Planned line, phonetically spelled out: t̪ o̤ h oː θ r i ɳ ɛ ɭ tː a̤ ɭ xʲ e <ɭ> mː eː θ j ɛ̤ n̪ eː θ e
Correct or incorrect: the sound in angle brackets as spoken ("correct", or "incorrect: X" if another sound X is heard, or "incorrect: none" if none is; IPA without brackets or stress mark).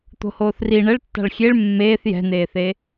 correct